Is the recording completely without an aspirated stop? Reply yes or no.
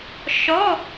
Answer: yes